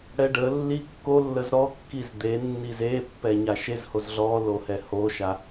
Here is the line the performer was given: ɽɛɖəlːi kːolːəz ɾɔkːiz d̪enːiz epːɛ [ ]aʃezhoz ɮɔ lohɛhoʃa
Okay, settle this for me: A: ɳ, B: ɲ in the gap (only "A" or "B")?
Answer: B